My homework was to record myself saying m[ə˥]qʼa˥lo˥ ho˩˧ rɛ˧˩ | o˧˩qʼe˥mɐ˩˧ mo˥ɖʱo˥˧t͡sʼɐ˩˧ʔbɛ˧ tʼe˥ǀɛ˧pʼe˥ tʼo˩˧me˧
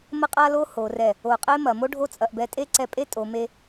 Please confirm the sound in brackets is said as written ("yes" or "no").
yes